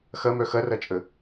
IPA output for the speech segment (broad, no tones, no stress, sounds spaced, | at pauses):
x ɐ m œ x ɐ r ɐ t͡ʃʼ ə